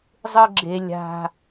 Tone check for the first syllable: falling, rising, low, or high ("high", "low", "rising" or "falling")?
high